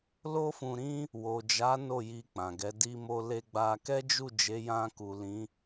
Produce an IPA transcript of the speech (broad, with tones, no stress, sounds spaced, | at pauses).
l o˦ f ũ˧ ɾ ĩ˦ | w o˨ d͡ʒ a˨˦ n o˦˨ j i˧ k͡p ã˨ ɡ ɛ˨˦ d i˧ m o˧ l e˧ ɡ͡b a˧ k ɛ˦ d͡ʒ u˦˨ d͡ʒ e˨˦ j ã˧ k u˨ l ĩ˨˦